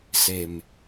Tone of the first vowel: low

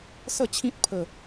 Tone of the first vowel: falling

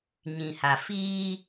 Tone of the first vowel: low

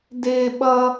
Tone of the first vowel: high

